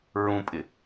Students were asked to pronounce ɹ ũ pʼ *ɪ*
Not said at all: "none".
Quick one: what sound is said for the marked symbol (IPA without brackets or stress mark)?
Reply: ɪ